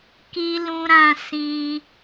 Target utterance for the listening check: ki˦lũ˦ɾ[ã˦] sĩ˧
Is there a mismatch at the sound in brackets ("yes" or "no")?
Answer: no